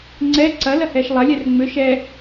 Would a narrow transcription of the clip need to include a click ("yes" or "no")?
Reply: yes